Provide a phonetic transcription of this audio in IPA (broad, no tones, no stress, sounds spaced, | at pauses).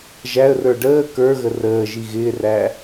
ʒ æ ə̯ r ə˞ ɖ əː k ə˞ ɣ ə r əː ʒ i ɣ ɪː r æ